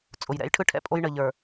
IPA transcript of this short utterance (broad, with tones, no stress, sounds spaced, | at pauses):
t͡sʼ ʊ˨ j ɾ ɛ̰˨˦ j ʈʰ ɯ˦ ʈʰ ɛ̰˦ pʼ o˦ j ɳ ə˨ ʎ ə˞˨